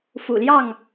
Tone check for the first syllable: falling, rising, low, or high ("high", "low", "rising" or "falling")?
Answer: low